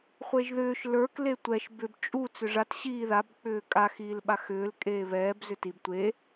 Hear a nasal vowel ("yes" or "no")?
no